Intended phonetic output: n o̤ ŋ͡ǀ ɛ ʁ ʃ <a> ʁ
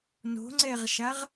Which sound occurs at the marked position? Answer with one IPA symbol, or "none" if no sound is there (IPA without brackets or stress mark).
a